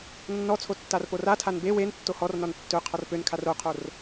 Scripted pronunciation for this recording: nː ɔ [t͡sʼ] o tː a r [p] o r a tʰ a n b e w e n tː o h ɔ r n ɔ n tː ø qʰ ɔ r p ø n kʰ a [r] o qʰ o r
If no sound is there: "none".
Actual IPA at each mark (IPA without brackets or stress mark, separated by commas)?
t͡sʰ, p, r